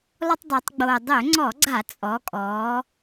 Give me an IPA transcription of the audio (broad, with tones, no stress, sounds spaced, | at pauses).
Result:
lˠ ʏ˦ tˤ dˤ ʊː˩˧ tˤ ɡ͡b oː˨˩ dˤ ʏː˧˩˧ ŋ͡ǀ ɔ˧˩˧ ɡ͡ǀ a˧˩˧ t͡sʼ ɔ˩˧ kʼ ɔː˩˧